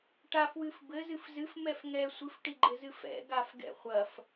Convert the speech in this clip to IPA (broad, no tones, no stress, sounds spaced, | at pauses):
ʈ a f w ɨ f b ɘ z ɨ f z ɨ f m ɛ f ŋ ɛ sʷ ɨ f ʈ i ɡ͡ǃ ɘ z ɨ f ɛ̰ ɡ a f ɡ ɛ̰ χʷ ɐ f